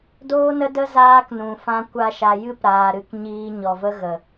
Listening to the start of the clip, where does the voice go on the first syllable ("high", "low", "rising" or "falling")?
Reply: high